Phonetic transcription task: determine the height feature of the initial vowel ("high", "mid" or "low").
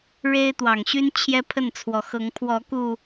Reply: mid